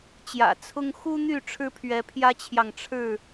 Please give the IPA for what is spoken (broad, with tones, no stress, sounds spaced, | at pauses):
t͡ɕ j ä̰˨˩ t͡sʰ ʊ˦ ŋ x u˦ n̪ y˥˨ ʈ͡ʂʰ ɻ̩˦ pʰ ɥ ɛ˨˦ pʰ j ä˦ t͡ɕʰ j ɑ˨ ŋ ʈ͡ʂʰ ɻ̩˥˨